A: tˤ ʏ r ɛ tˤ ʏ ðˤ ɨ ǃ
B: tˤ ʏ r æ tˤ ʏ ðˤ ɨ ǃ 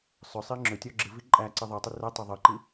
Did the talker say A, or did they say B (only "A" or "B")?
A